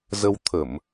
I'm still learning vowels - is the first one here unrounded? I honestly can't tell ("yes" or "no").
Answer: yes